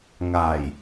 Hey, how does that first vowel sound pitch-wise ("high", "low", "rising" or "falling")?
low